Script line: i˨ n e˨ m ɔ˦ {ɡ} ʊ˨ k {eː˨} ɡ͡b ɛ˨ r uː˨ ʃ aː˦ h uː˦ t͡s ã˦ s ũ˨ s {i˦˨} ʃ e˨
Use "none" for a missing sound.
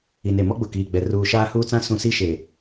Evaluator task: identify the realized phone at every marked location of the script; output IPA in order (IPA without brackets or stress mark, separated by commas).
ɡ͡b, iː˨, i˦˨